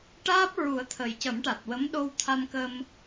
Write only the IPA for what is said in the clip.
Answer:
ʈ aː˦˥ p̚ ɹ u˨˩˦ ə̯ t̪ʰ ə˨˩ j c ə˨˩˦ m ʈ a˨˩ t̚ w ə˧˥ m ɗ o˧ w t̪ʰ a˧ m k ə˧ m

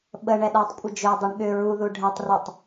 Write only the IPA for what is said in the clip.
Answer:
ɓ ə ɳ ɛ ɗ a tˤ kʷʼ ə d͡ʒ ø dˤ i ɳ ɠ ʏ ɹ u ð u ɖʱ ɛ tˤ r u tˤ

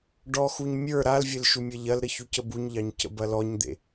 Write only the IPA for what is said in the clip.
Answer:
ɖ ɔ x u ɲ mʲ ə˞ ɾ a l vʲ ɘ l ʃ u mʲ ɐ ʎ ɐ l ɾ ə ç u c ə b u ɲ ʎ ɑ ɲ c ə̰ b ɐ l ɔ ɲ d̪ ḛ

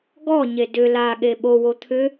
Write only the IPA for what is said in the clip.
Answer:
ɡ ɔ ɲ e d ʏ l a ɠ e ɓ o w o t̪ʰ ʏ

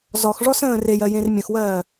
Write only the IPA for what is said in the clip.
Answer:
z ɔ x ʐ ɔ s ə̃ː r e j ɜ j ẽ r mʲ ə̃ x w ɜː

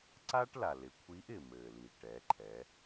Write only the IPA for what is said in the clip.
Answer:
ǀ aː˥ ʈ l a˩ l ɪ˩˧ kʷʰ iː˧˥ ʔ ɪ˩ m ɘː˩ l i˩ ʈ ɛː˩˧ ǃʰ ɛː˩˧

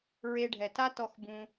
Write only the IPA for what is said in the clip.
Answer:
ɹ e˧ ɖʱ ɛ˨ t a˦ t ɔ˧ x b ũ˧

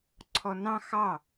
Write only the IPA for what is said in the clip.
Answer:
ǀʰ ɔ n ɑ̃ x ɑ

